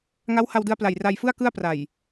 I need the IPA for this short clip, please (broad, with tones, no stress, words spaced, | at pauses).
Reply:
ŋa˦˥wha˧wdɯ˧a̯pla˨˩j ra˧jfɯ˥˩a̯ kɯ˥˩a̯pra˨˩j